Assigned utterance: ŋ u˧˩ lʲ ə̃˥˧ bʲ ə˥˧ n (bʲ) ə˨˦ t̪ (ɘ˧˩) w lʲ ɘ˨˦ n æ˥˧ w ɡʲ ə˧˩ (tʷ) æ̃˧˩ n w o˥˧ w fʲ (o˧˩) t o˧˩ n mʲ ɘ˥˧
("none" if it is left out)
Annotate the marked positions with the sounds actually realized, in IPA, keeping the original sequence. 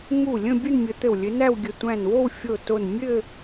mʲ, ɘ˧˩, tʷ, o˧˩

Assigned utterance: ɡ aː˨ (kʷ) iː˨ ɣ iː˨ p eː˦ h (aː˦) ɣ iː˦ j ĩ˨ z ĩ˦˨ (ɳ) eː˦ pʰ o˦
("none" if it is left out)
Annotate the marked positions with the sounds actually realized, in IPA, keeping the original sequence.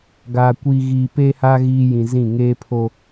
kʷ, aː˦, ŋ

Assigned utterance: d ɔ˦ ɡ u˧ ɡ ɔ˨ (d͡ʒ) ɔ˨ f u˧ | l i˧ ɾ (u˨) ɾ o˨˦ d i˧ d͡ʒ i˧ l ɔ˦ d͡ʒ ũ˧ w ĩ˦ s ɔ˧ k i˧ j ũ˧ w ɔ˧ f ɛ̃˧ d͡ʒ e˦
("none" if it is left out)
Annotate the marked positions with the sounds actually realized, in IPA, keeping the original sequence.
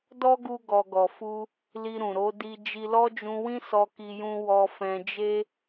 ɡ, ũ˨

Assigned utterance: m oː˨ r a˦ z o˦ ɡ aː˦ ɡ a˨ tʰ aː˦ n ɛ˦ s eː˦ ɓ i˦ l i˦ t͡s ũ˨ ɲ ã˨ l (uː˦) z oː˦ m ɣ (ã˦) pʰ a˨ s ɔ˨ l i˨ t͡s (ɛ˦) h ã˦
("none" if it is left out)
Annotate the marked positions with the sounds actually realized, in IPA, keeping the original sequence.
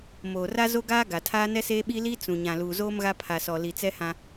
uː˨, a˦, ɛ˦

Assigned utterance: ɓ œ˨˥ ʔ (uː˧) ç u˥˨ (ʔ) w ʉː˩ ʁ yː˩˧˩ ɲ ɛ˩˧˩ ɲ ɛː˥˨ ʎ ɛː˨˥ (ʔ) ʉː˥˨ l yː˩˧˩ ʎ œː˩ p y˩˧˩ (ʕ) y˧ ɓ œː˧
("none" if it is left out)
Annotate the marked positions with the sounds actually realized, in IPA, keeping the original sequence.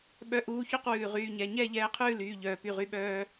uː˧, q, qʰ, ʁ

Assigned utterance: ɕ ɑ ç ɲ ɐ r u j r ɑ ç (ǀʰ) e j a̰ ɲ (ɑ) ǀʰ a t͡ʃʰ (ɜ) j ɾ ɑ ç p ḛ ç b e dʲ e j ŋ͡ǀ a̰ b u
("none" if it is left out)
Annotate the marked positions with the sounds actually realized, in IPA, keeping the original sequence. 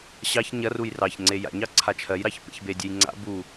ŋ͡ǀ, ɑ, ɜ

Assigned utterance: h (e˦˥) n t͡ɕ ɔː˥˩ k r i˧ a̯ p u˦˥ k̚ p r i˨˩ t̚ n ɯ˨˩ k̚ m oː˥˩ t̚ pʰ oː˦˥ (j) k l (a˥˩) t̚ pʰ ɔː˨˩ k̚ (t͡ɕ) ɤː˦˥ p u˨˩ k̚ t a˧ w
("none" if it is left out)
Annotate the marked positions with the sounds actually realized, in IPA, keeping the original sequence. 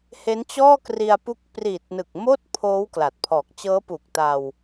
e˦˥, w, a˨˩, t͡ɕ

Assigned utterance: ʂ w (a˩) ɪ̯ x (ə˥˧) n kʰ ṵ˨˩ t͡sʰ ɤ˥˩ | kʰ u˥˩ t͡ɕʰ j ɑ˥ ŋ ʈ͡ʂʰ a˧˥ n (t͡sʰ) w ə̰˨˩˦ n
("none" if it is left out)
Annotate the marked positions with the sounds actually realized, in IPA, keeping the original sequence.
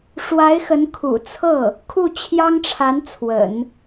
a˧˥, ə˧˥, t͡sʰ

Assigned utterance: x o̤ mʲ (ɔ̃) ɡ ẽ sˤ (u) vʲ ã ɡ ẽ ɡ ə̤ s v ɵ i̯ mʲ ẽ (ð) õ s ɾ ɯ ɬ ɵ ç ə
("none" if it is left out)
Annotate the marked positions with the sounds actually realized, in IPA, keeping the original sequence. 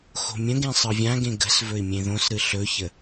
ə̃, ɯ, ð

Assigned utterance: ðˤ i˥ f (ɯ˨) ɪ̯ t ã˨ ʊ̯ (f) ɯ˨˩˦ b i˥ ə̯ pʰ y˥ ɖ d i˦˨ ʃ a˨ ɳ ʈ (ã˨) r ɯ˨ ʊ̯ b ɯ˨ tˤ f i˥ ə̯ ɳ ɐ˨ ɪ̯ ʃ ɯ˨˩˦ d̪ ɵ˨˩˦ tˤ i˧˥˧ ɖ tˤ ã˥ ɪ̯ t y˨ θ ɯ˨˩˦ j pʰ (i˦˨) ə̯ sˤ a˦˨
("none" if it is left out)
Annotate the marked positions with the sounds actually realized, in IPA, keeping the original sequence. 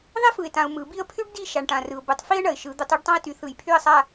ɯ˨, m, ã˨, y˦˨

